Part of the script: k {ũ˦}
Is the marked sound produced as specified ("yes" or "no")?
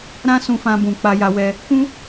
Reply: yes